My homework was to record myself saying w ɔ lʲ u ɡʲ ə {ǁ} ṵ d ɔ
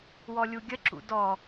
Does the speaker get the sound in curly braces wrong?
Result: no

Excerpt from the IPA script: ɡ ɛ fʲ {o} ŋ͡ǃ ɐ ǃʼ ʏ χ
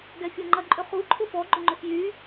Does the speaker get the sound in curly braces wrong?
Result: no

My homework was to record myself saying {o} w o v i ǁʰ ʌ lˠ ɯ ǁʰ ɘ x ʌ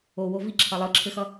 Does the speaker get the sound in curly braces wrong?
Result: no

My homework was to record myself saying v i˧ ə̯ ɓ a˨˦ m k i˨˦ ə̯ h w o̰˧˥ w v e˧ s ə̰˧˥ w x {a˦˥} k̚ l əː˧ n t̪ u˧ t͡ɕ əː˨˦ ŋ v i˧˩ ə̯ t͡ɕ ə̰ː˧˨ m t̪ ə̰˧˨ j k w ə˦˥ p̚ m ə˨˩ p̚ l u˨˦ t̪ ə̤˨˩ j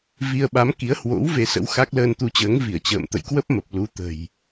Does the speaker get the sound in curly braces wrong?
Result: no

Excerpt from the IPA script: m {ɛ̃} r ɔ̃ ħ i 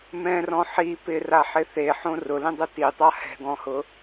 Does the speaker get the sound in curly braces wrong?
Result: no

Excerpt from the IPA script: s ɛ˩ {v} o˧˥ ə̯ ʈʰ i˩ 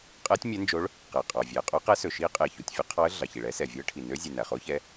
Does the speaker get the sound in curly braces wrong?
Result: yes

